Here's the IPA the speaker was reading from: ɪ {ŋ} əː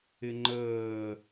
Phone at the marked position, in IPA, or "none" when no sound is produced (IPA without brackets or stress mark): ŋ͡ǃ